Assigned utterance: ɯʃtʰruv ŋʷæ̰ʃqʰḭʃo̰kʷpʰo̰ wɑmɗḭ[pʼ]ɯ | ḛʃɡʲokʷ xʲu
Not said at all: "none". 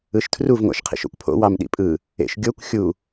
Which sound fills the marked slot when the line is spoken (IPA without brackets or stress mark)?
pʼ